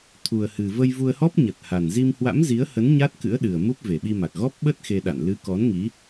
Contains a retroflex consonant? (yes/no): no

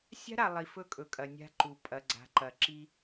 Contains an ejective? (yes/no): yes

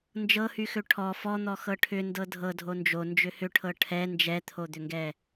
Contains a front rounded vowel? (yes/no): yes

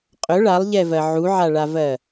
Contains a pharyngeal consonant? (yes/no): yes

